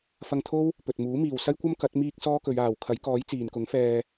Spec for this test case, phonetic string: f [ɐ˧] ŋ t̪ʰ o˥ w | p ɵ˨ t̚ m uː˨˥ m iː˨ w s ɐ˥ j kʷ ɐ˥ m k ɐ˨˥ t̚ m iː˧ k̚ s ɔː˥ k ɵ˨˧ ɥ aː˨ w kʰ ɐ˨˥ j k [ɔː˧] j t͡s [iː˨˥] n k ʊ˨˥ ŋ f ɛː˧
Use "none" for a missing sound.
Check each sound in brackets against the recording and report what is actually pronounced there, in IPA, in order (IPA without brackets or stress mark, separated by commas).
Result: ɐ˧, ɔː˨˥, iː˨